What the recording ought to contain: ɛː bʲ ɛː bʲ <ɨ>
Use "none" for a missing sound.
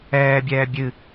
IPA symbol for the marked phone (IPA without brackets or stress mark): ɨ